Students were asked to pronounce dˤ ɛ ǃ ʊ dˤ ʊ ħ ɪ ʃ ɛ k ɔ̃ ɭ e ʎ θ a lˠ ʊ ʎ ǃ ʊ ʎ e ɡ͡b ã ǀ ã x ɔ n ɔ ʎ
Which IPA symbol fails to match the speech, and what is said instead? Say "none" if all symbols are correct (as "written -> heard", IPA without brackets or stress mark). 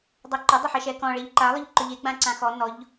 θ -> ǃ